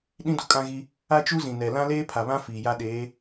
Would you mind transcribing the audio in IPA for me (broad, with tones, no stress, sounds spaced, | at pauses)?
ɗ ĩ˦ d u˨ kʼ ã˦ ɣ i˦ | a˦ t͡ʃ u˦ z ĩ˨ n ɛ˨ l ã˦ l eː˦ pʰ a˨ β ã˦ f iː˨ j a˦ ɗ eː˨˦